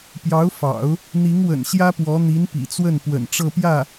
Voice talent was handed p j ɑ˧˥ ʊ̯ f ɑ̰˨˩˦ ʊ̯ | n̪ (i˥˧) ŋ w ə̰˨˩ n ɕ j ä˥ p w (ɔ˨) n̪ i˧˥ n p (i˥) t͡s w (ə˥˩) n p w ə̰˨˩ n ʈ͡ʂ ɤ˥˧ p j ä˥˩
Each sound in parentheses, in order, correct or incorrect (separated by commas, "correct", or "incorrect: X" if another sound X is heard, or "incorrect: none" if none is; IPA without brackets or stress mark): incorrect: i˧˥, incorrect: ɔ˧˥, incorrect: ḭ˨˩, correct